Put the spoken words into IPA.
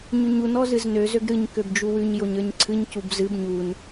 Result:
ɲʉɲun ɔzɨznø zøɡɾɨɲ købd͡ʒuwʉɲ joɲə˞ɲǀʰɨɲ cubzɨb ɲun

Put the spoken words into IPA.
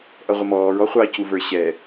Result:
ʔʌʁʷəmɔːɹ ɔχʷɑ cuvə˞ɕɛ

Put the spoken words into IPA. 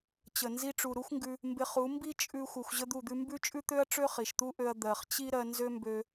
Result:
t͡ɕə˨ nzi˧ʈ͡ʂu˨ɾu˦xʷŋɡʉ˧ | mbɪ˧χu˨˦ mbi˦ t͡ʃʼʉ˧ xʷɜ˧xʷʑə˦d̪u˦˨d̪ʉ˦ mbʉ˦t͡ʃʼʉ˦t̪ø˦ɐ̯ ʈ͡ʂø˦χi˨ʃt̪u˦ʔø˧ɐ̯ d̪ɜ˨χt͡ɕi˦ ɾɜ˧nzø˦mbø˧

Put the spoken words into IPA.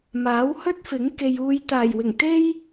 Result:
maː˨˥whɵ˥t̚fɪ˨˥ŋ ke˨j uː˨jt̪aː˨˩jwɪ˨˩ŋ t̪e˥j

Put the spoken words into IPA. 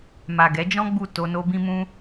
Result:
ma˨ɡɛ˨˦d͡ʒɔ̃˦ ɡ͡bu˦˨ to˧no˦bĩ˦ mũ˦

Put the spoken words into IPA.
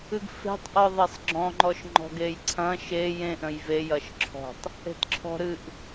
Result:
ɨɡfe̤tˤ ʔɔðˤesˤɡ͡ǁɔ̃ ŋ͡ǃɔʃŋ͡ǃɔ̤ɡejǀʰɐ̃ ʃe jẽʔ ɾə̃jve jɐʃǁʰɔ̤tˤ | e̤tǁʰɔ̤ ɾɨʔ

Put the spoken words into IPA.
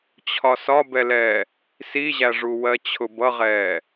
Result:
t͡ɕʰɒsɒbɛlɛː | siʑæʐu wɜt͡ɕʰʊbʌʁɛː

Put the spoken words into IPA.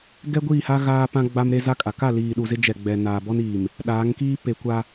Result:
ɡɛ˦ɡʷiː˦˨ha˦ ɣaː˦pã˦ɡ͡ba˦mɾe˦ za˦kʼa˨ ka˦˨liː˨ɗu˨ zɪ˦d͡ʒɛ˨ɡ͡bɛ˨ naː˨bɔ˦n iː˨m | ɗaː˨˦ŋkiː˦ pe˨kʷa˦

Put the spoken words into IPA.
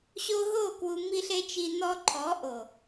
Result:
ɕo˧ɦo˦˨ kwu˧mi˦ɬe˦t͡ʃi˧ nɔ˧ǃʰɔ˨˦ʔo˨

